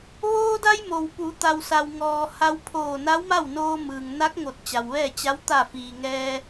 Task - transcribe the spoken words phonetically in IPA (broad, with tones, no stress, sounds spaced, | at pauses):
ʋ oː˧ d a˧ j m o˩ w p u˩˧ t̪ a˩ w s a˩ w ŋ ɔː˩ h a˧ w pʰ oː˧˩ n a˧˥ w m a˥˨ w n oː˧ m ɯː˩ ŋ n a˧˥ k̚ ŋ o˧˩ t̚ t͡ɕ a˩ w ʋ ɛː˥˨ t͡ɕ a˧˥ w t̪ a˧˩ f iː˩ ŋ ɛː˧